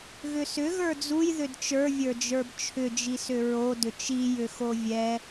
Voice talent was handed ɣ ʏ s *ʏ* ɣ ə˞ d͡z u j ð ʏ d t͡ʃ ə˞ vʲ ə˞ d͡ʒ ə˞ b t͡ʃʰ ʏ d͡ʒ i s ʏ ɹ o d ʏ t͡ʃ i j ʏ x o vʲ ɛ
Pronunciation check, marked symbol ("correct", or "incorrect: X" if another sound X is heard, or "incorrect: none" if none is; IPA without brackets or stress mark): correct